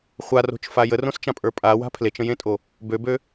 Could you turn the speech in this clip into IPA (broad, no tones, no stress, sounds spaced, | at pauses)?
χʷ a r o̤ t͡ʃ f a j ə r õ s t͡ʃ ã pʼ ə˞ pʼ a w a̤ pʰ l e t͡ʃ ə̃ j ẽ tʼ o | b ø b ø